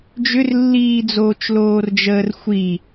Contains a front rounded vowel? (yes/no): yes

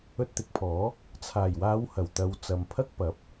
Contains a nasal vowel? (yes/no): no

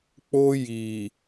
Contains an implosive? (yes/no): no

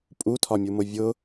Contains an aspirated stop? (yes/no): yes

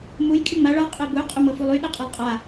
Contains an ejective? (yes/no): yes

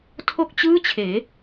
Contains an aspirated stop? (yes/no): yes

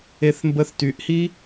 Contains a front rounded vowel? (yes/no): yes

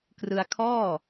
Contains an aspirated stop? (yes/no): yes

